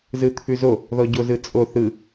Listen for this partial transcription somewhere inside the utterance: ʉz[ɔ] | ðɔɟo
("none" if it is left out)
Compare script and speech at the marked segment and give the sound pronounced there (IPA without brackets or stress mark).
o